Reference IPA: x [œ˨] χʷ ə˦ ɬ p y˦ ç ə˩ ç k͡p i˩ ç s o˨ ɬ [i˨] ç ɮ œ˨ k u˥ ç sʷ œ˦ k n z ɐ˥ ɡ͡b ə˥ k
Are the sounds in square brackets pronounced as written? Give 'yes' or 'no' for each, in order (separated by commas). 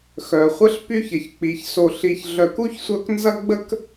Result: no, yes